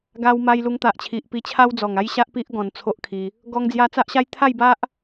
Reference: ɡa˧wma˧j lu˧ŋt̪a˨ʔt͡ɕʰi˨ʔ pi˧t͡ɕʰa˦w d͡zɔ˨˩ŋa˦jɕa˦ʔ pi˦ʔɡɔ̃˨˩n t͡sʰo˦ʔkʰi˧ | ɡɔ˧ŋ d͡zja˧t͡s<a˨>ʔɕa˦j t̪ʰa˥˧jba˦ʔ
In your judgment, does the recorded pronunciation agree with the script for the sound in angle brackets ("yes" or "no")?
no